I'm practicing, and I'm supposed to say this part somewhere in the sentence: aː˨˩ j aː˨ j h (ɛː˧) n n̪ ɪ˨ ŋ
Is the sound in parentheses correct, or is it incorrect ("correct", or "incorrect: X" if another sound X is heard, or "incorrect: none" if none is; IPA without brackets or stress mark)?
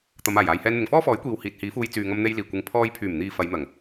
correct